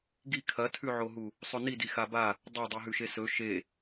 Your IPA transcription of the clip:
ɡ i kʰ ɐ tʰ ʉ ʕ o ɦ u | sˤ ɵ n i d i x a b a | dˤ ɐ dˤ i ɦ ʉ ʃ e s ɵ ʃ e

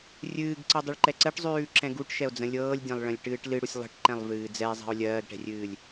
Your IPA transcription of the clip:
rʲ ɨː ɡ ǀ ɤ dˤ ʉ ɭ ǃ ɛ ǀ ɜ ʈ zˤ ʉː ǁ ɛ̃ ɡ u ʈ ʃ ɛ o̯ d͡z ə̃ lʲ ɤː lʲ dʲ ɛ̃ lˠ ɭ ə̃ lʲ ʈ ɨː ʈ l ɨ ɽ u sʲ lˠ ə̤ ʈ ǃ ɛ̃ lˠ v ɨː d͡z ɛ e̯ zˤ ɛ̤ o̯ lʲ ɜː ɡ ʈ ɛ̤ rʲ ɨː lʲ

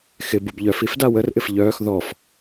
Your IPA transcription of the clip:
x ɪ b u b ʎ œ f i f d a w ə r ʔ ɪ f ʎ œː x ð ɔ f

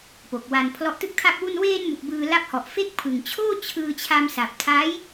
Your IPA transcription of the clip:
p o˨˩ k̚ w a˧ n pʰ l ɔ˦˥ ʔ t ɯ˥˩ k̚ tʰ a˥˩ k̚ w u˥˩ n w eː˧ n m u˨˩ k̚ b ɯː˧ l a˦˥ p̚ h ɔ˨˩ ʔ f e˥˩ k̚ pʰ ɯ˨˩ ŋ t͡ɕʰ oː˥˩ t͡ɕʰ ɯː˧ t͡ɕʰ a˧ m s a˨˩ p̚ tʰ a˦˥ j

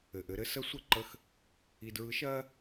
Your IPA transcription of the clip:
ɘ˩ ʔ ɘ˩˧ ɾ ɘ˧ s ə˧˥ sʷ ɘ˧ ǃ ə˧ x | i˧ d ɹ ɯ˧˥ ʃ ɜ˥

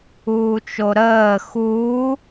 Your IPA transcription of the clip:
uː t͡ʃ o ɾ əː x uː

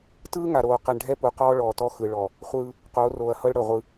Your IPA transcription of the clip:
t ɯː˦ ŋ a˨ ɾ oː˨ q ɛ˨ ɳ ɖʱ ɛ˦ p u˨ q ɔː˦ ɭ ɔː˨ t ɔ˦ x ɯ˨ ɭ ɔ˨ | χʷ ɯː˦ | q oː˨˦ r oː˨ ɐ̯ h ɤ˦ ɭ ɽ ɤ˨ ʁʷ ɯ˦

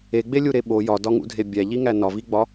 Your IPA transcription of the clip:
e ɡ͡b e lʲ u ɾ e ɓ o j ɒ d ɒ ŋ ṵ dʱ e bʲ æ ʎ i ŋ æ n ɒ v i ɡ͡b ɒ

